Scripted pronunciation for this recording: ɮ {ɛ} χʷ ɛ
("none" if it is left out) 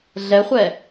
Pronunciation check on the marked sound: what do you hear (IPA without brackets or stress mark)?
ɛ